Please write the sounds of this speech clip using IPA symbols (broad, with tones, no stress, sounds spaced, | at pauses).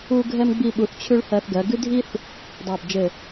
u˥ ɡʱ ɛ˥ m ɡ͡b i˥˧ ɓ u˧ θ t͡ɕʰ ʉ˥ ɭ h ɜ˧ θ ɡ ɜ˩˧ ɡ ʉ˥ dʱ i˥ θ | dˤ ɜ˧˩ b d͡ʒ ɘ˧˩